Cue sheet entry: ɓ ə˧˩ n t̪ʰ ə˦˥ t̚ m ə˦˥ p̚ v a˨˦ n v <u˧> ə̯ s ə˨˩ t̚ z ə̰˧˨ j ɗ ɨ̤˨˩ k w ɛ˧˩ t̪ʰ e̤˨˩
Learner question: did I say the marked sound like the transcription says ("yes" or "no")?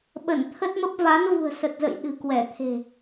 no